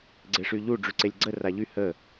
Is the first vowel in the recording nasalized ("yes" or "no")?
no